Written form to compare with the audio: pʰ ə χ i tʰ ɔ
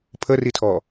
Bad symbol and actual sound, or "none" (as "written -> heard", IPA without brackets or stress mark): χ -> r